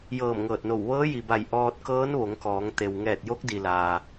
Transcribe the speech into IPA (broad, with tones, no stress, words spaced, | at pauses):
jɤː˧˩mŋɤː˧˩t̚no˧˩w ʋɤː˧˥ji˩ba˧˩j ʔɔː˧t̚ kɤː˧˥nʋo˩˧ŋkɔː˩˧ŋt̪e˩w ŋɛː˧˩t̚jo˧˥k̚di˩laː˩